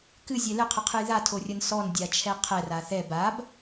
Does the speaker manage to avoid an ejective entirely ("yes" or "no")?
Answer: yes